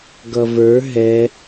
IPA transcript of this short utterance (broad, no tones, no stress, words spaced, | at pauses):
ɡʌvə˞ ɦɛ